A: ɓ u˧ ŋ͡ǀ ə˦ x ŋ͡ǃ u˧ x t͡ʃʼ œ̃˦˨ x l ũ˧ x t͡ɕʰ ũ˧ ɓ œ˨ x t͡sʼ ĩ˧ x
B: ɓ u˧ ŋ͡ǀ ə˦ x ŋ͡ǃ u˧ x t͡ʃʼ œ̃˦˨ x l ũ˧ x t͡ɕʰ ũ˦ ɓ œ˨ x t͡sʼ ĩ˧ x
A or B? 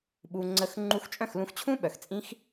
B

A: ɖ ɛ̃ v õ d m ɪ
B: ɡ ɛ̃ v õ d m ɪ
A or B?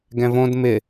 B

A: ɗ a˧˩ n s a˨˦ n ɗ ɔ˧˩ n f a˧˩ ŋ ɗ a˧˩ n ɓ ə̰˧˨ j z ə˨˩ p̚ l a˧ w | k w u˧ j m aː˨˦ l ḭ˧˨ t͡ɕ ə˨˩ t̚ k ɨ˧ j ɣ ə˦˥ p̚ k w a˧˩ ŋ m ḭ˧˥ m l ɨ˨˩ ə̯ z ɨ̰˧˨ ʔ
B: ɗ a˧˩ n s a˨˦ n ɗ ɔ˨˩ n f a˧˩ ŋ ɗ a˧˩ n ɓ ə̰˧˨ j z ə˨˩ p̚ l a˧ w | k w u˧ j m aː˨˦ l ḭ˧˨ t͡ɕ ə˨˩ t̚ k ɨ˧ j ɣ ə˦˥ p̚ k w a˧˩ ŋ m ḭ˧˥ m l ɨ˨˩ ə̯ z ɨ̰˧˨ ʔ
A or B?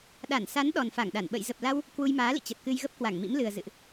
B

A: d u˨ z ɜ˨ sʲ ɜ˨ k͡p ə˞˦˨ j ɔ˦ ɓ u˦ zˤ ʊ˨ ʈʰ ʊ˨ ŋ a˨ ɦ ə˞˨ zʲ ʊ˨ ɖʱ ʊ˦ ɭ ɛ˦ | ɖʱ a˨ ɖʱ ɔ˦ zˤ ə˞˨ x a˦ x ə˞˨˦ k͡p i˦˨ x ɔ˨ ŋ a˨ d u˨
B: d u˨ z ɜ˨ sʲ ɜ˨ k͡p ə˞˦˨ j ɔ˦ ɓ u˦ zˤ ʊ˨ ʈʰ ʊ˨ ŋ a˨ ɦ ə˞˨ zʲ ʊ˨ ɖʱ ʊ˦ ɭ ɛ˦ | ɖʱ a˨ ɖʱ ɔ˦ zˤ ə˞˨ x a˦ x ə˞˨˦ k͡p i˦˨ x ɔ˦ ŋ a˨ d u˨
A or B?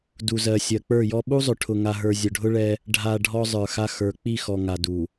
A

